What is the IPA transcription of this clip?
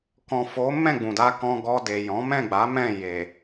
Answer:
k ɔ̃˨ f o˨˦ m ɛ̃˦˨ ɡ͡b ũ˨ d a˧ k ɔ̃˧ ɡ ɔ˧ d e˨ j ɔ̃˨˦ m ɛ̃˦˨ ɡ͡b a˨˦ m ɛ̃˦˨ j e˨

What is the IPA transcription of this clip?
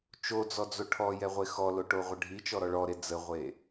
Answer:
t͡ʃ o d͡z ɔ d͡z o ʈʰ ɔ j ɛ ʁʷ e x ɔ l o ʈ o ʁʷ ə ɖʱ i t͡ʃ ɔ ɾ ɔ ɭ ɔ ɾ e d͡z ə ʁʷ e

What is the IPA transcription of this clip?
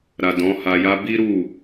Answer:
ɾ a˨ d ɔ̃˨˦ h a˧ j a˧ b i˦ ɾ u˦˨

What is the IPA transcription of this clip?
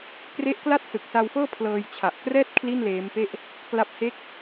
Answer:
k r e˦˥ ʔ k l a˥˩ t̚ s ɯ˨˩ k̚ s a˧ w f ɤː˥˩ pʰ l ɤː˧ j t͡ɕʰ a˨˩ ʔ k r ɛː˥˩ t̚ kʰ l i˥˩ n l eː˦˥ m p e˥˩ ʔ | k l a˦˥ p̚ h e˥˩ k̚

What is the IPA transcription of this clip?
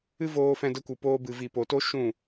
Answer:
ɨ˦ v oː˧ f ɛ̃˧ d ə˧ kʷ ɨ˨ p oː˧ b ɨ˨ v i˨ p o˨ t o˦ ʃ ũ˦˨

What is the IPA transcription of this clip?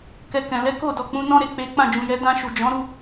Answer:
k ɛ˧ k ɛ̃˨ l ɛ˨˦ k o˦˨ d ɔ˨ k͡p ũ˨˦ n ɔ̃˦ ɾ e˦˨ k͡p e˨˦ k͡p ã˦˨ d͡ʒ ũ˨ j ɛ˨˦ d ã˧ ʃ u˨ d͡ʒ ɔ̃˨˦ ɾ u˦˨

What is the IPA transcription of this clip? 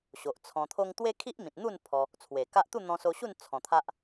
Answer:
ɕ o˨ ʔ t͡sʰ ɔ̃˧ t̪ʰ o˦ ŋ t̪ w e˦ kʰ i˦ ʔ m ĩ˨ t̚ n̪ u˥˧ n pʰ ɔ˧ | t͡sʰ w e˨˩ k a˦ ʔ t̪ u˥˧ n̪ ɔ̃˧ s o˧ ɕ u˥˧ n t͡sʰ ɔ̃˨˩ t̪ʰ a˦ ʔ

